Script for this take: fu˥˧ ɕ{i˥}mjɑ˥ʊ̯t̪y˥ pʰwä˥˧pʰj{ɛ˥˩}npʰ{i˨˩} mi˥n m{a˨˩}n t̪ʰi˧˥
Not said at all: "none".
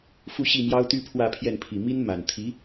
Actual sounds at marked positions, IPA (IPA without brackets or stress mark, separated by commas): i˥˩, ɛ˥˩, i˨˩, a˨˩